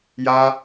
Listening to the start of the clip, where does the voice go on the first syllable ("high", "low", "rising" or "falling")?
high